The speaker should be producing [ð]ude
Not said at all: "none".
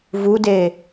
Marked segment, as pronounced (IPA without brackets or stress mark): v